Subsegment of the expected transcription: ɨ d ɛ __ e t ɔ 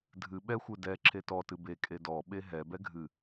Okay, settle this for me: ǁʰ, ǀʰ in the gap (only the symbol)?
ǁʰ